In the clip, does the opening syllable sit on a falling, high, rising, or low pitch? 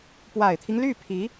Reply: low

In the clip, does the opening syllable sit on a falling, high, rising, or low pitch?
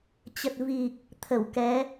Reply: low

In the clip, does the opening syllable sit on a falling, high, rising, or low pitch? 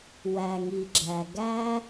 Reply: low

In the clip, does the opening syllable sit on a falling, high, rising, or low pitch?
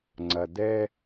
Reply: low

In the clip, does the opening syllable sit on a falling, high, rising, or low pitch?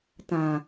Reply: low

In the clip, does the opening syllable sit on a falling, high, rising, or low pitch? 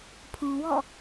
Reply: low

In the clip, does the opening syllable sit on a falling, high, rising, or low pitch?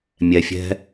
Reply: low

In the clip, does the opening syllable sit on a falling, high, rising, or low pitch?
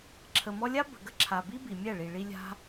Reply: low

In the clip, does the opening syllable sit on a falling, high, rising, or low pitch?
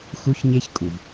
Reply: high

